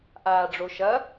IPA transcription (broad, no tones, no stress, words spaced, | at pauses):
ʔaːɖ͡ʐoʃɐ